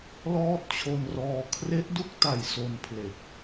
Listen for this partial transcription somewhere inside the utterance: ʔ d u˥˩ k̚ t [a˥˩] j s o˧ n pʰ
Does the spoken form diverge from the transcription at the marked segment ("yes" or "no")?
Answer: yes